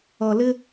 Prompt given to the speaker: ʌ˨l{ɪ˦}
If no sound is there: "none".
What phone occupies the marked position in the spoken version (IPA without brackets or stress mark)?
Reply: ɪ˦